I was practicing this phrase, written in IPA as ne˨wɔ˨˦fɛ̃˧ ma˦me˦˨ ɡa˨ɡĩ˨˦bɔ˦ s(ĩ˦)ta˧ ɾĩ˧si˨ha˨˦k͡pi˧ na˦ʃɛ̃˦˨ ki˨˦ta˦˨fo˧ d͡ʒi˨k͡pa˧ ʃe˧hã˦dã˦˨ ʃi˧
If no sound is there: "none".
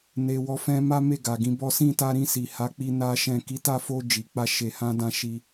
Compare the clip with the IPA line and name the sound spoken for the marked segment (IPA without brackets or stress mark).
ĩ˦˨